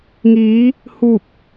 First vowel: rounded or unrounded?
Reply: unrounded